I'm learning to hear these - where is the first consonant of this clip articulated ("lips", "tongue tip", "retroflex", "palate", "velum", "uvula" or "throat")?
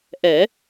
throat